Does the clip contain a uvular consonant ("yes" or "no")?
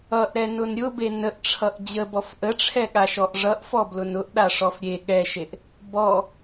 no